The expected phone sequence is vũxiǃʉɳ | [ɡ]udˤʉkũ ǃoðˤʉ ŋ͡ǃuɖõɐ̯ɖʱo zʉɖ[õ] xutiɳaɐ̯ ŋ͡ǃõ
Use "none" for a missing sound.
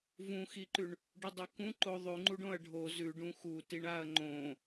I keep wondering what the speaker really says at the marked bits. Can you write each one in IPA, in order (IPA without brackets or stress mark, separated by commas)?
ɖ, ũ